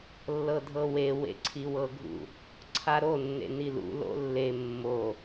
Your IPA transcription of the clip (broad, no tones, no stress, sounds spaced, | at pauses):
lː ɤ dʱ ɤ w e w ḛ ǀʰ i w ɤ ɡʱ ṵ | ǀʰ a ɾ o nː ḛ n i l ṵ l o̰ lː e mː o